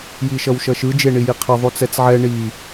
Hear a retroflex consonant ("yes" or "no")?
yes